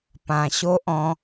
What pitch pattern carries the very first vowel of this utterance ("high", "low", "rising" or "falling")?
low